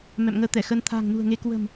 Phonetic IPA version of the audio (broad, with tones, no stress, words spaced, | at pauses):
mɛ̰˧˨mŋəː˧t̪ɛ˧˩xə˧n t̪ʰa̤ː˨˩ŋnṳ˨˩ə̯ŋe˨˦ kwə̤˨˩m